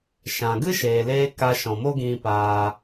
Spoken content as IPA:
ʃã˨ ɡɨ˦ʃeː˨leː˧ ka˧ʃɔ̃˨mo˦ɡĩ˧ paː˧

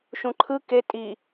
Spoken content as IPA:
ʃũǃʰɯ ke tʼi

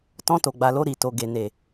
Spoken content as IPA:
tɔ̃˧to˨ɡ͡ba˨lo˧ ɾi˨to˨ɡe˨ ne˨

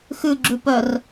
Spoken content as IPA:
xʉɡ͡ǁʉpœr

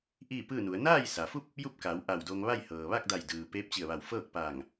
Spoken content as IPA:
ʔiː˥˨pɯː˥˨nu˩˧ə̯ naː˥˨jsa˩fu˥˨p̚ | ju˥˨p̚ka˩˧w ʔa˧˩wdo˧ŋ ʋa˥˨jhɤː˩ ʋa˥˨k̚da˧˩j dɯː˩ peː˧˥p̚t͡ɕi˧˩ə̯ʋa˧˩w fɤː˥˨k̚paː˧˩ŋ

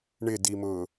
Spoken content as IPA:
ɳɪdimʊ

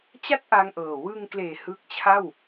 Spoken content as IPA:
t͡ɕa˥˩t̚ʔa˧ŋʔɤː˨˩ wɯ˧ŋkleː˨˩ hɯ˦˥k̚t͡ɕʰa˥˩w

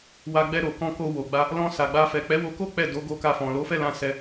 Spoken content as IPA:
wa˧ɡ͡bɛ˧ɾo˨ kɔ̃˧ko˧ wo˨ɡ͡ba˧ | lɔ̃˧sa˨ɡ͡ba˧ fɛ˨k͡pɛ˨˦wo˧ko˦ k͡pɛ˦˨ do˨˦ ɡo˧ka˧fɔ̃˨ lo˨˦fɛ˦˨lã˧ sɛ˧

